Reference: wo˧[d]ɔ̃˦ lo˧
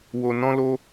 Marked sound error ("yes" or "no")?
yes